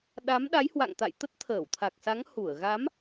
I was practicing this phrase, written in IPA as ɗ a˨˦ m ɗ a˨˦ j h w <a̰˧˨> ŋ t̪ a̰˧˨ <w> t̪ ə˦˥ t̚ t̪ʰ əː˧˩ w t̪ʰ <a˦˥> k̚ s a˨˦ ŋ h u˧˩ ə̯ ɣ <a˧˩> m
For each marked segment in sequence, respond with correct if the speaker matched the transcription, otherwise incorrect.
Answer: correct, incorrect, incorrect, incorrect

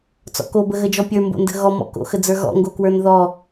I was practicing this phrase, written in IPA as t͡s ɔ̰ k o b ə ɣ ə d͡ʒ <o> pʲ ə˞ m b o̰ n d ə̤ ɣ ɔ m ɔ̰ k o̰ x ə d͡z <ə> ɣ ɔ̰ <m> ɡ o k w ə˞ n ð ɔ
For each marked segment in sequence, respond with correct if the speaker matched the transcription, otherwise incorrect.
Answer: incorrect, incorrect, incorrect

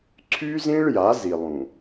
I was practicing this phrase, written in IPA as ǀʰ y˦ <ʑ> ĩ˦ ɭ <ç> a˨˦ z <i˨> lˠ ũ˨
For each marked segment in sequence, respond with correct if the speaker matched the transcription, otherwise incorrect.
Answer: incorrect, incorrect, correct

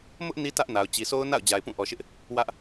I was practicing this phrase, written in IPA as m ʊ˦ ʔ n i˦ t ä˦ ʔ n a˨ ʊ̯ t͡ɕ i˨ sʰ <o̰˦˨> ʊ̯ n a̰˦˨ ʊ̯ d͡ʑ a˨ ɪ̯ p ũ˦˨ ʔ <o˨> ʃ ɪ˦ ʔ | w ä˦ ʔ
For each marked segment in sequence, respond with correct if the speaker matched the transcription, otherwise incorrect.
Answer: incorrect, incorrect

